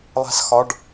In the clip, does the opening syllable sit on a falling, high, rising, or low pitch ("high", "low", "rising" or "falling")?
falling